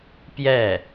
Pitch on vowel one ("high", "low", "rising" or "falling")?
falling